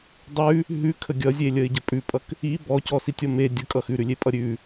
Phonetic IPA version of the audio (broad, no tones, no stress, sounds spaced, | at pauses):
dˤ ʉ | ɦ ʉ kʰ ə ɡʲ ʌ zʲ e lʲ ə ɪ̯ ɟ ə pʼ ʉ pʼ ʌ k | i b ɔ c ɔ s i tʲ ʌ m e dʲ ə kʼ ʌ x ʉ ɾ ʉ lʲ e pʼ ʌ ɾʲ ʉ